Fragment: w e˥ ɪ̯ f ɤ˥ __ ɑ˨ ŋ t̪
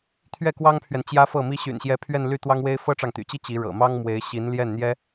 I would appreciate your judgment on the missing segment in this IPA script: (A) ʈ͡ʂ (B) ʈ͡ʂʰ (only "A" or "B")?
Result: A